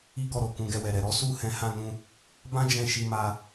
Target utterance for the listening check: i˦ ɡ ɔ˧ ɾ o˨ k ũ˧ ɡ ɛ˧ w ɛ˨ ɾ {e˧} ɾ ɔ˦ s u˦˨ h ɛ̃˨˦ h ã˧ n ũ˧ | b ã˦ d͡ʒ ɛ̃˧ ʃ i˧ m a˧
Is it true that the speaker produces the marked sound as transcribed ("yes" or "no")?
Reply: no